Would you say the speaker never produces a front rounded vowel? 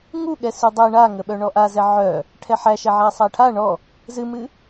no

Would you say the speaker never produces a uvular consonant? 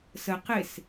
no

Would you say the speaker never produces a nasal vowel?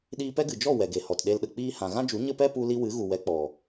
no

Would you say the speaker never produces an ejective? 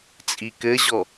no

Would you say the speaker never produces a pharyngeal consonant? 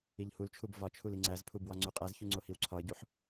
no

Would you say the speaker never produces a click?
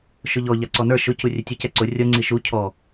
no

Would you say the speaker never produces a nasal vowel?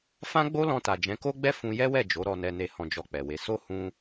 no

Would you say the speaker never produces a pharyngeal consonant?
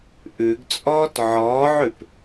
no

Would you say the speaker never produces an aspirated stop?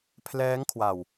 no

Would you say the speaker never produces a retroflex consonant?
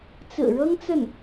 no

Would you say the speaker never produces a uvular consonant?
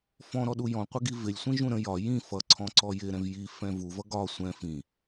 no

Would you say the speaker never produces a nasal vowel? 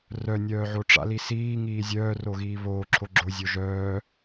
yes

